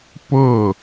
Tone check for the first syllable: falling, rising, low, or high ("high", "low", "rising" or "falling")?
falling